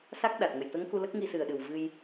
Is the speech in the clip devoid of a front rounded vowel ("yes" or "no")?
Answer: yes